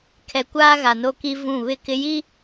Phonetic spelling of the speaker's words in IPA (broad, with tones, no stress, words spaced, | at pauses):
kʰɛ˨kʷaː˦ ɣa˨no˦ki˦ vũ˦˨ βɪ˦˨kɪ˦ji˦